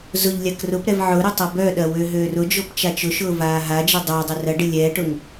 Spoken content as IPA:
zʊʎ lʲakrʊpɾɛv ʕʊɾʊ tˤɐbœɗɐ wøɦøːrʊd͡ʒop t͡ʃat͡ʃʊʃʊː vaːɦad͡ʒɪ dˤʊːdˤɪ rɐɖɪ lʲɛːʈʊŋ

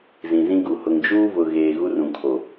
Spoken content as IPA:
zĩ˨zĩ˦ɡu˨ hʊ˨ŋd͡ʒuː˦vʊ˨ɣeː˨ ɣu˦rũ˨kʰo˨

